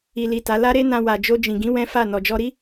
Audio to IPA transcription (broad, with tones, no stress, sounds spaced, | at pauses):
i˨ l i˨ t a˨˦ l a˦ ɾ e˦ n ã˧ w a˨ d͡ʒ o˧ d͡ʒ ĩ˨ ɡ ĩ˨˦ w ɛ̃˦ f a˦˨ n ɔ˨ d͡ʒ ɔ˧ ɾ i˦